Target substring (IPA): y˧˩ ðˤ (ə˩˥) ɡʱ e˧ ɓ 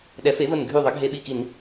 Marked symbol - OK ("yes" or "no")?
yes